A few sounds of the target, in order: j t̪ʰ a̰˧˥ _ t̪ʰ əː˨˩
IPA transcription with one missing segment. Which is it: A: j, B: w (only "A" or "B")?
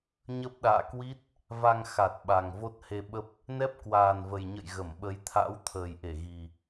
B